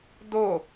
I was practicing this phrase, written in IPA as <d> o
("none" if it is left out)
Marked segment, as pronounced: d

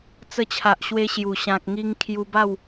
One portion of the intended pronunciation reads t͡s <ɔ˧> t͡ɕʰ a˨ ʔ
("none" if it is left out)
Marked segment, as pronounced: ə˧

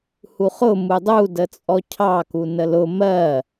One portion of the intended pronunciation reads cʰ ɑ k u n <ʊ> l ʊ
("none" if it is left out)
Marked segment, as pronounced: ə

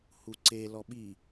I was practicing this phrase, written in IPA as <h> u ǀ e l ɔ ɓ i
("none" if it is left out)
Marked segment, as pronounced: h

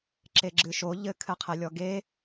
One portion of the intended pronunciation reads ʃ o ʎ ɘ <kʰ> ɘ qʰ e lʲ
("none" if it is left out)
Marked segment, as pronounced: kʰ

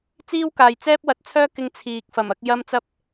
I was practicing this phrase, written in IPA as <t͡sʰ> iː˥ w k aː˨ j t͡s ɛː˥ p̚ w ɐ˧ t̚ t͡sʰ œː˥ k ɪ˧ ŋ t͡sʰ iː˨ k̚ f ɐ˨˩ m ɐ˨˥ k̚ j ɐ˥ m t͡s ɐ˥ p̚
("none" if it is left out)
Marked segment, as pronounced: t͡s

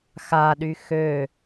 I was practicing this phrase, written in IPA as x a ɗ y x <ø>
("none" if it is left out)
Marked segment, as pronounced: ø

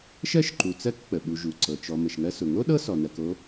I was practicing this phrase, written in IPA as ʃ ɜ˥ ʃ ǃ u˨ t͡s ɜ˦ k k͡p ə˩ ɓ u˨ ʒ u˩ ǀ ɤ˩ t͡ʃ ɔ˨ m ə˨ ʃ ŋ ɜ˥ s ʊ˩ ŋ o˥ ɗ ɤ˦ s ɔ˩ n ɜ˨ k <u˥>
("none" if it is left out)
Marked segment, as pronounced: o˥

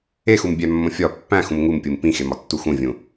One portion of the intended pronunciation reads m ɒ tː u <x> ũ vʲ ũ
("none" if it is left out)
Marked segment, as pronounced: x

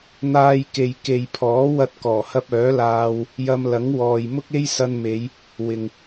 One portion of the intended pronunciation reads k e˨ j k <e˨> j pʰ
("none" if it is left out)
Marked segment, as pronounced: e˨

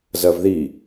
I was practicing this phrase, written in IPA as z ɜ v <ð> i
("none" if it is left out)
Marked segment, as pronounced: ð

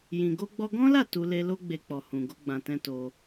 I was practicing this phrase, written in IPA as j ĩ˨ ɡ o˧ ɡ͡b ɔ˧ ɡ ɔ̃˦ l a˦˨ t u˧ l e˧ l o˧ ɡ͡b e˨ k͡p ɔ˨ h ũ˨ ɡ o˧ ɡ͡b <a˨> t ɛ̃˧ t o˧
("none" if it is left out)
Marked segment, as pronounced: ã˨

